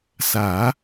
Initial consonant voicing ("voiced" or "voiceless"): voiceless